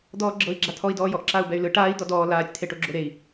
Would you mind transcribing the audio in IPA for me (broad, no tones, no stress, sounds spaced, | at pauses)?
d̪ ɔː ɡ͡ǁ ɤ i̯ ɡ͡ǁ a t̪ʰ ɔ i̯ d ɔː j ɔ ʔ ǁ a u̯ b ɛ y̯ l ɯ ʈ aː i̯ d̪ ɔ d ɔː l aː tʲ t̪ʰ e ʈ o ɡ͡ǁ o ɾ e i̯